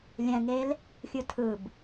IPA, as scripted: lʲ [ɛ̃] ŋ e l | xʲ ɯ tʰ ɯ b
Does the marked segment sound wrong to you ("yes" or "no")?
no